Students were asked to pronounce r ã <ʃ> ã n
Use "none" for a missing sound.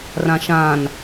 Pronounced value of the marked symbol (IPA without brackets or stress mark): ʃ